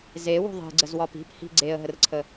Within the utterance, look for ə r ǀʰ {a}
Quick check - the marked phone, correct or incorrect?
incorrect